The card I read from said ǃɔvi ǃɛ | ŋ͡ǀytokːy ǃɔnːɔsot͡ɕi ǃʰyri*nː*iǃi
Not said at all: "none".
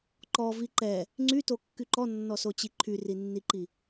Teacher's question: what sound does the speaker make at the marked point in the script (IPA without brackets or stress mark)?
nː